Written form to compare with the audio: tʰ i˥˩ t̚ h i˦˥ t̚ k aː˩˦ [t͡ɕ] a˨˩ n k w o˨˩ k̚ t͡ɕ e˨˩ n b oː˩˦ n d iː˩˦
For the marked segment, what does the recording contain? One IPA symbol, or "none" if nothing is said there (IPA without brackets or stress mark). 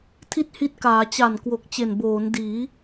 t͡ɕ